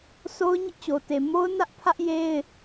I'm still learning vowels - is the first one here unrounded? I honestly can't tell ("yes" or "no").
no